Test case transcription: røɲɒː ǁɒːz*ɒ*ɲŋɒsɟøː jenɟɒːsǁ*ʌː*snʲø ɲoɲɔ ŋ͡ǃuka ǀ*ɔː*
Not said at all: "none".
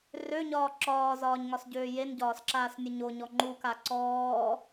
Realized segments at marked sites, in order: ɒː, aː, ɔː

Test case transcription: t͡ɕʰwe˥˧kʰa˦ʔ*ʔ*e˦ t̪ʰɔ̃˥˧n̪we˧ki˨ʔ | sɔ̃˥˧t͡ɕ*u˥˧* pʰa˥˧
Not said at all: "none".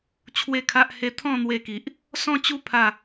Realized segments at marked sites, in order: h, u˥˧

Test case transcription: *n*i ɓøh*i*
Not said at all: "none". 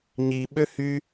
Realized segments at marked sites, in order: ɲ, y

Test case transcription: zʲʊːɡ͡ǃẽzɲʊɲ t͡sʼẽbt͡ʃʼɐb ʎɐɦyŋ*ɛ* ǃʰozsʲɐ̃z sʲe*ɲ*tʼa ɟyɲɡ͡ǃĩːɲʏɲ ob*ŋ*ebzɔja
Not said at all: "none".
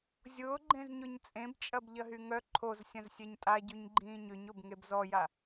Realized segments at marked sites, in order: œ, ɲ, ŋ

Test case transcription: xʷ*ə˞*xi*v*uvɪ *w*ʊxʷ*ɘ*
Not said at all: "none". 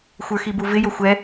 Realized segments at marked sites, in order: ə˞, b, j, ɛ

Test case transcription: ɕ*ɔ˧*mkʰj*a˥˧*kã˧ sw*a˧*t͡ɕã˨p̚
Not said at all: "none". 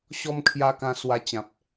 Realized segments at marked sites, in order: ɔ˧, a˧, a˧

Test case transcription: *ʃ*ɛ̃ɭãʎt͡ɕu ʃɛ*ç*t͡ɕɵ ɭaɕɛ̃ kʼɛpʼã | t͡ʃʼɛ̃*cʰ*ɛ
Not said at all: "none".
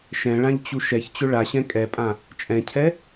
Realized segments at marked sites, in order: ʃ, ç, cʰ

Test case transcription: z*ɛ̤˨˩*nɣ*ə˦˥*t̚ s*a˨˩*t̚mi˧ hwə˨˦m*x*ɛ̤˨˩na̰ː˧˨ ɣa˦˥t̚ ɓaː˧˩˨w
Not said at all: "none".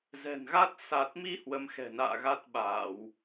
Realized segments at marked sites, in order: ɛ̤˨˩, a˦˥, a˨˩, x

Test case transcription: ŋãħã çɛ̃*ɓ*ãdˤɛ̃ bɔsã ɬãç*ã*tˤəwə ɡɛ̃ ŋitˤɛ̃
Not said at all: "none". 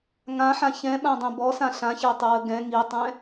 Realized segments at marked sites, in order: ɓ, a

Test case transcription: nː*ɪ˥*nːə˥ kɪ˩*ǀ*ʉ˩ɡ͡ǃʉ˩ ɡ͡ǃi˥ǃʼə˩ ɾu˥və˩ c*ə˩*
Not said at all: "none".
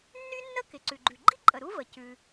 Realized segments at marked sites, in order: y˥, ǀ, ʉ˩

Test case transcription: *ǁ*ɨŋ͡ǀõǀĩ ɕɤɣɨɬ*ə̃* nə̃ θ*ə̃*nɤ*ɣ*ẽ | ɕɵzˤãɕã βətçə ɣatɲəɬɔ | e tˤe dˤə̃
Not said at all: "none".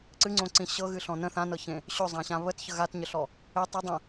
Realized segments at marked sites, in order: ǀ, ɔ̃, ã, ç

